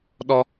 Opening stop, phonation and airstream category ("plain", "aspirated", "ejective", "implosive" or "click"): implosive